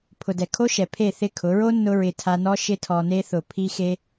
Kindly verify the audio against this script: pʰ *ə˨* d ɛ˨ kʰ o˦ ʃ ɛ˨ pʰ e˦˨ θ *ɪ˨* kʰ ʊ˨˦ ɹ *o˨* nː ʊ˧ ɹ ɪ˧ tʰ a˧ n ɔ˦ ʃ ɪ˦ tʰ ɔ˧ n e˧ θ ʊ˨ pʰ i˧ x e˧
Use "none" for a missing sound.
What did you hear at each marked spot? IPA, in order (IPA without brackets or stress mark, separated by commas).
ʊ˨, ɪ˦˨, o˦